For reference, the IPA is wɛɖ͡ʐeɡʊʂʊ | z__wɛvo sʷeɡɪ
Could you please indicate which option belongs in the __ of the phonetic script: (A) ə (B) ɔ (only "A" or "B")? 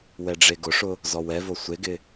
B